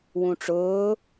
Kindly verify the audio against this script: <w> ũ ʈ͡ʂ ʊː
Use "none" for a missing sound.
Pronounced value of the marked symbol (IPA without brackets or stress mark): w